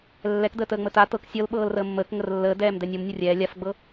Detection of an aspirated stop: absent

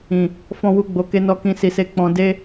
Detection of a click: absent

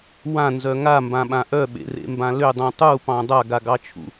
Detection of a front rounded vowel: present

